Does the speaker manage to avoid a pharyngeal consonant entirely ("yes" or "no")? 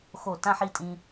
no